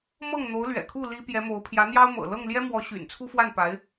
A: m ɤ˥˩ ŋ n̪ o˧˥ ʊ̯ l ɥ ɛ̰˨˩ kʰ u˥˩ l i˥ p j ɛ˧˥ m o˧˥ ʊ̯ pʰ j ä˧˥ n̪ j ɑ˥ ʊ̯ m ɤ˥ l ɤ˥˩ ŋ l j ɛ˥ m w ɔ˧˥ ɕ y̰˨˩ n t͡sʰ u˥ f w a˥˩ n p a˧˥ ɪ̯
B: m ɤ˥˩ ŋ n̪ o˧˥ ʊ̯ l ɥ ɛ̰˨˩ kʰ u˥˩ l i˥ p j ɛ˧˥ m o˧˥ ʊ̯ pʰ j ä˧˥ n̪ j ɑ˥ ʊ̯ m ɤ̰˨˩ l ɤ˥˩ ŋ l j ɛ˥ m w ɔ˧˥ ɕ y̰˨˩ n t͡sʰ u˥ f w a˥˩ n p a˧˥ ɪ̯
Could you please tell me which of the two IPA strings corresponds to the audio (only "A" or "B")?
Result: B